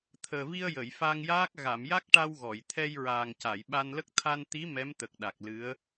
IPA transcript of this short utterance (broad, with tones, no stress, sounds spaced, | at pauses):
t̪ʰ əː˨˩ v i˧ ə̯ j ə˨˩˨ j f a˧ ŋ j aː˦˥ k̚ ɣ a˨˩˨ m j a˦˥ k̚ ʈ a˧ w ɣ ɔ˨˩˨ j t̪ʰ ɛ˧ j ɹ aː˨˩ ŋ c a˨˩˨ j ɓ a˧ n l ə˦˥ k̚ t̪ʰ a˧ n t̪ i˧˥ m ɛ˧˥ m t̪ ə˨˩ k̚ ɗ a˨˩ k̚ l ɨ˧˥ ə̯